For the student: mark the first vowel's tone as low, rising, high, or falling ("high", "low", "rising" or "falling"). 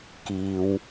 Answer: low